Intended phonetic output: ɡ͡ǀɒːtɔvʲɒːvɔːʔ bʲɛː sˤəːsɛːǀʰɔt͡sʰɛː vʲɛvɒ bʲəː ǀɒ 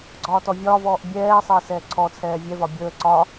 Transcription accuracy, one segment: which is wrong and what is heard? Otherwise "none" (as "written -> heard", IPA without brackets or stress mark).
none